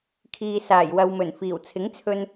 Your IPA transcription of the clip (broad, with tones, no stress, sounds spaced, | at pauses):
kʰ iː˨ s aː˨˩ j w ɐ˨ w m ɵ˨˩ n f iː˨˩ w t͡sʰ ɪ˨˥ ŋ t͡sʰ ɵ˧ n